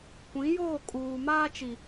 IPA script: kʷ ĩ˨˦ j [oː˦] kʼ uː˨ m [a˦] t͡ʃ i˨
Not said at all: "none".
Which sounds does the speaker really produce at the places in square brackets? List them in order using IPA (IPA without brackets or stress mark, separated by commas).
oː˦˨, aː˦